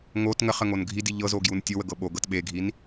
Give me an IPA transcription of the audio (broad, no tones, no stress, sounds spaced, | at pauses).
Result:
ŋ o t ŋ ə χ ə ŋ o n ɡʱ i d i ʎ ɤ z o ɡ j u n tʲ o w ə ɡ ɤ ɓ o ɡ ɤ t ɓ e ɡʱ i n